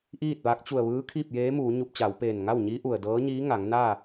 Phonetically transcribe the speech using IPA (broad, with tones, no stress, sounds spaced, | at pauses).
ʔ iː˥˨ t̚ ʋ a˧˥ k̚ t͡ɕ u˧˩ ə̯ ʋ ɯː˧˥ kʰ iː˥˨ p̚ j eː˧˥ m uː˩˧ ɲ u˧ p̚ t͡ɕ a˩˧ w p eː˧˩ n ŋ a˥˨ w ɲ i˧˥ ʔ u˩ ə̯ d ɤː˧˥ ɲ iː˧˥ ŋ a˩˧ ŋ n aː˥˨